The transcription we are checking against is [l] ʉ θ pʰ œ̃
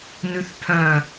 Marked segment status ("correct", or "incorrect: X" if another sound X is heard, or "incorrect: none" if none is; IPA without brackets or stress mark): incorrect: n